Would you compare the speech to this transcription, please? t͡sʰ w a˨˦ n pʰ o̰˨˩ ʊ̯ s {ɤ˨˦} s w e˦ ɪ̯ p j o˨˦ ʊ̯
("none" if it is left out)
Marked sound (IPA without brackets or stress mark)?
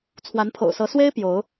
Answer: ɤ˨˦